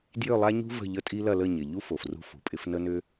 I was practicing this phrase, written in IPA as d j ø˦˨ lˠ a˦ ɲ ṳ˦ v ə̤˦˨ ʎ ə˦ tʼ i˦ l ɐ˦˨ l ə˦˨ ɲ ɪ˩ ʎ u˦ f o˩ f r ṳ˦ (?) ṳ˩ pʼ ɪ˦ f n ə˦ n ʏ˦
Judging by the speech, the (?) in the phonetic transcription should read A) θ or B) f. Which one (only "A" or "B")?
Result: B